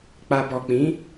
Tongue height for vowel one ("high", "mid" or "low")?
low